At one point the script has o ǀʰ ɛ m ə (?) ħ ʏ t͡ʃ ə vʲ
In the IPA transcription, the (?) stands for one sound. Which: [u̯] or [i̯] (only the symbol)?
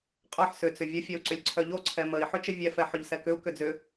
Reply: i̯